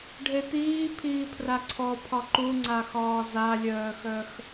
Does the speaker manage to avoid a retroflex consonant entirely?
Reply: no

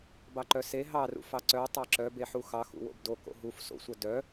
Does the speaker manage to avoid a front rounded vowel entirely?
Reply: no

